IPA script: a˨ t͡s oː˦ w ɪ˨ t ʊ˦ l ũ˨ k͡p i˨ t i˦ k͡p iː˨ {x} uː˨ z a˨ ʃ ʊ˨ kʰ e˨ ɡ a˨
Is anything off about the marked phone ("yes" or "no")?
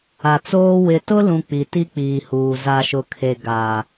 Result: yes